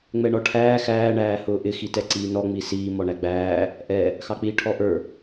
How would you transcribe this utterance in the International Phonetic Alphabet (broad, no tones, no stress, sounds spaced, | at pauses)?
ŋ͡m ɛ ɳ ɔ ʈʰ æː x æː ɳ æː h ʊː ʔ ɪ x i t ɛ ǀ iː n ɔ ŋ͡m i s iː m ɔ ɳ æ ɡ͡b æː | ʔ ɛ | x ɑ k͡p iː ʈʰ ɔ ʔ ə˞